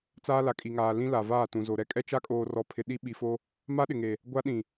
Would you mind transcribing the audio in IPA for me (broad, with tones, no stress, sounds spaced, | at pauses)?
t͡s aː˦ l a˨ kʼ i˨ ŋ aː˨ l ĩ˦ l a˨ v aː˦˨ t ũ˨ z o˨ ɾ ɛ˦ kʼ ɛ˦ t͡ʃ a˦ kʼ oː˨ r ɔ˨ pʰ ɪ˨ ɗ i˦ ɓ i˨ f o˦ | m a˦ ɗ ɪ˨ ŋ e˨ | ɡʷ a˦ ɗ ĩ˨